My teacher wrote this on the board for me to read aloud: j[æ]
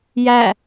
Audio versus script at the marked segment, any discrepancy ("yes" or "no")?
no